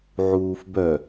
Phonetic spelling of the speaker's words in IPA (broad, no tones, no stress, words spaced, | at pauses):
ʕuːfbœ